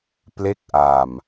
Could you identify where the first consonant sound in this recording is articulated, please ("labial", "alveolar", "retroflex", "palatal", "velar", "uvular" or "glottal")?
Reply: labial